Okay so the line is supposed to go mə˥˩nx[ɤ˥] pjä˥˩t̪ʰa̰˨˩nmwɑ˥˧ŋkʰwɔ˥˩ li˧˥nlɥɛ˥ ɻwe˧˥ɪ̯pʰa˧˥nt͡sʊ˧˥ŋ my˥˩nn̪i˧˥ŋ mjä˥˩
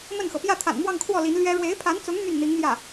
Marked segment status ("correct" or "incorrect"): incorrect